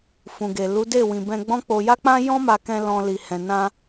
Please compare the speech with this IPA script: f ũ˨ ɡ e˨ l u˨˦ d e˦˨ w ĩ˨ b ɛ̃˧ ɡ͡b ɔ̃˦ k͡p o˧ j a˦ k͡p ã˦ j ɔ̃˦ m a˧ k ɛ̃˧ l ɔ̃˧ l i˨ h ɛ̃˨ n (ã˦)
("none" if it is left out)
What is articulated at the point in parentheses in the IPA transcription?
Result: ã˧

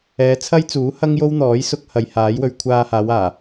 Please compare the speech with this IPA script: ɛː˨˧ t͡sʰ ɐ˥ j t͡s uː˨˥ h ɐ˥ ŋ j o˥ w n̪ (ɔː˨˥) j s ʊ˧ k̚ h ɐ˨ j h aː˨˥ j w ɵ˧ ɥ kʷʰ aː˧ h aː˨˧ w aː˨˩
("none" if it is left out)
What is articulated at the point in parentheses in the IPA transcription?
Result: ɔː˨˥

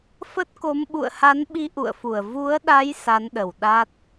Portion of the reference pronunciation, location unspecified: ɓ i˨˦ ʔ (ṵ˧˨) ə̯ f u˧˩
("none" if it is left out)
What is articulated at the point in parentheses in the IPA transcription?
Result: ṵ˧˨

